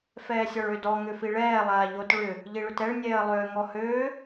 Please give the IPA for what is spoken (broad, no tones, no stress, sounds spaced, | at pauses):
f ɛː sʲ ɒ ɭ ø d ɔ ŋ ʏ f i ɭ ɛː lˠ aː ʎ o t ɭ ʏ | ʎ i ɭ ʏ t ɛ ɭ nʲ ɛː ə̯ lˠ ʏː ŋ ɔ h øː